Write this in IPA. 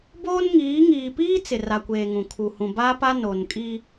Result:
b oː˦ n ŋ iː˨˦ ŋ iː˨ p iː˦ t͡s ɪ˨ r a˨ kʷ eː˨ ŋ ũ˨ kʰ u˨ h ũ˨ b a˦ p a˦ n o˨ n kʼ i˦

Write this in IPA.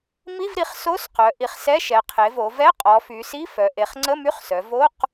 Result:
m i˧˥˧ v ɾ i˩˧ χ s o˧˥˧ s q œ˩˧ ʔ i˩˧ χ s ɛ˧˥˧ ʃ ɛ˩˧ qʰ e˩˧ v o˩˧ v ɛ˧˥˧ qʼ ɔ˩˧ f y˩˧ s i˧˥˧ f œ˩˧ ʔ e˩˧ χ ŋ͡ǀ ə˧˥˧ m y˧˥˧ χ s œ˩˧ v o˧˥˧ q

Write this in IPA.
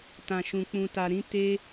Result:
t ã˨ ʃ ũ˨ k͡p ũ˨ t a˨ ɾ ĩ˨˦ t e˧

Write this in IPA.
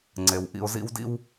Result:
ŋ͡ǀ e˩ w ʔ ḭ˨ ʊ̯ z ḭ˦ w d ḭ˥ w

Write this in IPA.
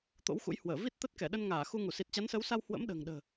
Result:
t̪ o̰˧˥ w x ṵ˧˥ j h w əː˧˩ v i˦˥ t̚ t̪ ə˦˥ t̚ k ɛ˧˩ ɗ ə˧ n ŋ aː˧˩ x u˧ ŋ u˧˩ s i˨˩ t̚ t͡ɕ a˨˦ n s əː˨˦ w s a˧ w h w ə̰˧˥ m ɗ ə̤ː˨˩ ŋ ɗ ə̤ː˨˩

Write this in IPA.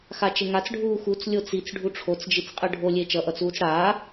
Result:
x a t͡ʃ e ŋ a t͡s ɖʱ uː x u t͡s lʲ o t͡s i t͡s ɖʱ u ʈ͡ʂʰ o t͡s d͡ʒ i t͡s qʼ ɯ ɖʱ o lʲ e t͡ʃ ʌ ʔ ʌ t͡s uː t͡s ɽ aː

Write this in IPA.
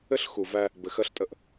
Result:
ɘ˦ ɬ x u˨ v æ˦ | b ɘ˨ x ɜ˦ ɬ tʼ ə˦ ʔ

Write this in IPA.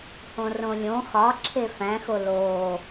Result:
h õ r õ lʲ õ x ɒ ǁʰ e f æ̃ x o l oː

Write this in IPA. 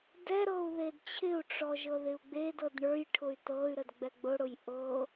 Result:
d ɛ ɾ ɤ u̯ ð e d t͡ɕʰ ɪ u̯ ʈ͡ʂ ɔ ʒ ɤ ð ɪ u̯ ɡ͡b e d ɤ d ɳ ə˞ j ʈʰ ʊ y̯ t ɤ y̯ ɾ ə d ɡ͡b ɛ ɡ͡b ʊ ɽ ʊ j ʔ ɤ

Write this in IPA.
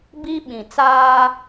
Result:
b i˦ ɓ ĩ˨ t͡s aː˦

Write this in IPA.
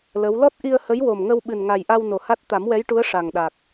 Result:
l ə˧˥ w l ɔ˦˥ t̚ ʔ i˧ ə̯ h ə˧˥ j w o˨˩ m ŋ ə˧ w ɓ ɨ˨˩ n ŋ a˨˩ j ʔ a˧ w n o˨˩ h a˦˥ t̚ t̪ a˨˩˦ m w ɛ˧˥ j ʈ u˧˥ ə̯ ʂ a˨˩ ŋ ɗ a˨˩ k̚

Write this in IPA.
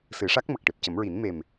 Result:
s ɨ˨˩˦ ʂ a˦˥ k̚ m ə˨˩ k̚ ʈ e˨˩ p̚ c ə˨˩˦ m ɹ i˨˩˦ n m e˨˩ m

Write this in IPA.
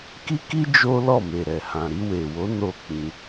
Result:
k i˦ k i˦ d͡ʒ o˦ l ɔ˦˨ m e˨ ɾ ɛ˨ h ã˨ ɾ i˧ w e˨ w o˨˦ n o˦˨ k͡p ĩ˧

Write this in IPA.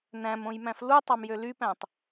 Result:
n æ̃ m õ j m æ̃ f l u tˤ ɑ m j ø l y p æ̃ tˤ

